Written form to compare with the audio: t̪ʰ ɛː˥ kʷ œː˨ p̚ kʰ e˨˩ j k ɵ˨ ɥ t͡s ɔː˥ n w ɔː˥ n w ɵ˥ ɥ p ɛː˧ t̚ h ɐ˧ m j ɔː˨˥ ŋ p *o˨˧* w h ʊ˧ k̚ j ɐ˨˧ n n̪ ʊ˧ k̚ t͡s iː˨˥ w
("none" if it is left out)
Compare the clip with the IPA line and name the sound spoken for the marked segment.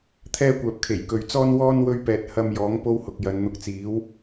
o˥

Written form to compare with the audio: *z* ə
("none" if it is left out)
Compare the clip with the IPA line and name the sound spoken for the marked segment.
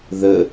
ð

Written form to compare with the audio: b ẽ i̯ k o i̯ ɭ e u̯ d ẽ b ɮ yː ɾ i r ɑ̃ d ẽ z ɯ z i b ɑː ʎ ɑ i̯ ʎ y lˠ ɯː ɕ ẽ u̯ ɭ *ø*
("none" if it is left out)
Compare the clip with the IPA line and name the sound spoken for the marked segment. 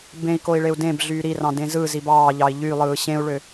ø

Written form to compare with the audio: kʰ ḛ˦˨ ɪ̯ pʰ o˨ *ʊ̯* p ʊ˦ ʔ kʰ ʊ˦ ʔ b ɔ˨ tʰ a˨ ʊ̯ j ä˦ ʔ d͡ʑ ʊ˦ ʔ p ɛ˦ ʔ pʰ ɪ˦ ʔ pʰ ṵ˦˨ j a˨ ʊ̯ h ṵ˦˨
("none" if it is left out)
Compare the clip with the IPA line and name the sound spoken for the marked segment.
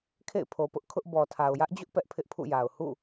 none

